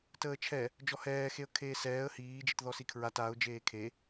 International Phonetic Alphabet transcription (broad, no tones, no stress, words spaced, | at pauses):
təːt͡ʃʰɛ | d͡ʒɔhɛːxeə̯ kʰeːsɛːə̯ hiːd͡ʒitðɔ sikʰɹat aʊ̯ d͡ʒeːkʰe